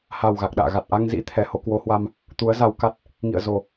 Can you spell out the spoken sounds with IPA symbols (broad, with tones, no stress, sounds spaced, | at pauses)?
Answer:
h a˨˩ w ɣ a˨˩ k̚ ɗ a̰ː˧˨ ɣ a˨˩ t̚ ʔ a˧ ŋ z ḭ˧˥ t̪ʰ ɛ˨˦ h o˨˦ k w o˨˦ h w a˧ m | t̪ u˨˦ ə̯ z a˧ w k a˦˥ t̚ | ŋ ḭ˧˨ ə̯ z o˨˩